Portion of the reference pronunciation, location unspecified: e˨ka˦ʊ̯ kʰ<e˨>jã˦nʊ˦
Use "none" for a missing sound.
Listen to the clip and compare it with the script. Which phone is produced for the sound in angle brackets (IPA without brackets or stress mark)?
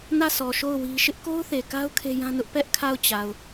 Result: e˦